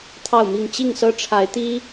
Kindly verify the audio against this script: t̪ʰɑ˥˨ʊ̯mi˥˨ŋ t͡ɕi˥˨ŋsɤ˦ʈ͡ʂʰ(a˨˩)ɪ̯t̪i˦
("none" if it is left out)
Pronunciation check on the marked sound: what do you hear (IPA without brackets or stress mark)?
a˨˦